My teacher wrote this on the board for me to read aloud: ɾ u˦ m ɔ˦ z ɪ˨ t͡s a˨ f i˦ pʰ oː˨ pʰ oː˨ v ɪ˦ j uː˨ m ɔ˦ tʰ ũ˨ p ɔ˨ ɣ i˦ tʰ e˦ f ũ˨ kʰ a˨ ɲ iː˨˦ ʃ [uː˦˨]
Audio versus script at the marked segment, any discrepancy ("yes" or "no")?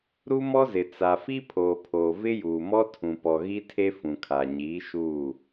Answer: no